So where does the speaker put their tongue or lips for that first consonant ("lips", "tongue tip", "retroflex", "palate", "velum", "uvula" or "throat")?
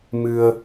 lips